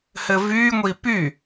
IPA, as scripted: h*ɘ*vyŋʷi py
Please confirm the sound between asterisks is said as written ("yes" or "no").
yes